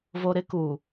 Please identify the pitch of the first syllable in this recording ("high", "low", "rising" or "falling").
low